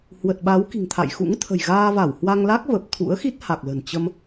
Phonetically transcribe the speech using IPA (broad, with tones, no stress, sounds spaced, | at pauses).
h w ə˨˩ t̚ ɓ a˨˦ w k i̤˨˩ ŋ t̪ʰ a̰˧˨ j x ṵ˧˥ ŋ t̪ʰ ə̤˨˩ j ɣ aː˧ v a˧˩ w h w a˧ ŋ l a˦˥ k̚ v ə˨˩ p̚ t̪ʰ ṵ˧˥ ə̯ x i˦˥ t̚ h a˨˩ k̚ l ə̤˨˩ n t͡ɕ ə˧ m